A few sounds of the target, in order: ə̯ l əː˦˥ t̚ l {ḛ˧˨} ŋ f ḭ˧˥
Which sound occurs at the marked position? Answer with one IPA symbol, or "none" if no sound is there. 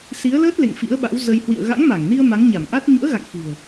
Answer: ḛ˧˨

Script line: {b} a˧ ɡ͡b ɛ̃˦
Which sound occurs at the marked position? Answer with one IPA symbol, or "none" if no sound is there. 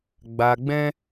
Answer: ɡ͡b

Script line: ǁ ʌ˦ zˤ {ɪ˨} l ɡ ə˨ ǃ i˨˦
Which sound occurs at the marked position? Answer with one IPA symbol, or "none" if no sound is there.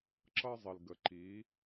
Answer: ɪ˨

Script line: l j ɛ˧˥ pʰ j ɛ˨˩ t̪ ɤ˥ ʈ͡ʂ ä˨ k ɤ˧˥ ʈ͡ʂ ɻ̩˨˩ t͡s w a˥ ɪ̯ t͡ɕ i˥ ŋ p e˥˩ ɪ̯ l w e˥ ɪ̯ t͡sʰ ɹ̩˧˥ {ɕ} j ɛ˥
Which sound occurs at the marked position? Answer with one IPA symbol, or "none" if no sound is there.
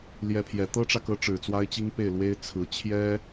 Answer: t͡ɕʰ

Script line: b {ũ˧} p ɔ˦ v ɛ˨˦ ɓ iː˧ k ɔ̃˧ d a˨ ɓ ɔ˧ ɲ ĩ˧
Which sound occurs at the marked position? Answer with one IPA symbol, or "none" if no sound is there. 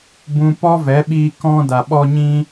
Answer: ũ˧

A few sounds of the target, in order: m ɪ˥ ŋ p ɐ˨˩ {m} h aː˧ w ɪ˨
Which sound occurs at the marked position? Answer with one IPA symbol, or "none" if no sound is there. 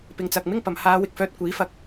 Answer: m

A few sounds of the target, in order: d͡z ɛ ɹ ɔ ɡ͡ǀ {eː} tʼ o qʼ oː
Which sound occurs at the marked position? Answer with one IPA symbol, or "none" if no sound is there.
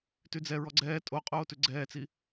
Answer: ɛː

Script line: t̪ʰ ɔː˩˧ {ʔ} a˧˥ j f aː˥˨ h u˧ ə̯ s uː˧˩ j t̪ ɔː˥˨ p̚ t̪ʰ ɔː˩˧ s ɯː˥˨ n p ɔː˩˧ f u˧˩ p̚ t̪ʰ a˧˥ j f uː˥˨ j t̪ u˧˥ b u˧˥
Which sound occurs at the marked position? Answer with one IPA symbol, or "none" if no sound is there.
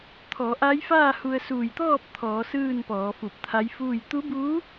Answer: ʔ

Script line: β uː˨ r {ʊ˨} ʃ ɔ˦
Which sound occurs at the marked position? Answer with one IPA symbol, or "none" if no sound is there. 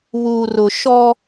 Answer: ʊ˨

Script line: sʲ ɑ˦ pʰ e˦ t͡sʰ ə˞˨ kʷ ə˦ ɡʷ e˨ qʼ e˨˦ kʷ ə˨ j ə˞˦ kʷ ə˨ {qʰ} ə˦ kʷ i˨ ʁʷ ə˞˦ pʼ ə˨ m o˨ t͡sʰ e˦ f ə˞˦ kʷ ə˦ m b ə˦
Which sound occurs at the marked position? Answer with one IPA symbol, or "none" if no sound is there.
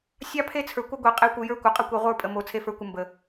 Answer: qʼ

